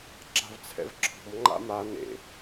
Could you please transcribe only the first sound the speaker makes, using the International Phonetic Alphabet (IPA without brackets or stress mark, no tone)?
ǁ